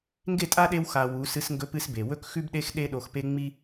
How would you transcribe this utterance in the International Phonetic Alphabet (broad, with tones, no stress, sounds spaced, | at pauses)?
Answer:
ŋ ɡ e˦˨ tʼ a˦ ɗ e˧ w x a˨ w u˨˦ s ɨ˧ s ŋ ɡ ɵ˧ p ɨ˧ s b e˨ w ɵ˦ k x ʉ˦ b ɗ e˦ x ɗ e˦ ɗ o˧ x p e˦ ŋ͡m i˦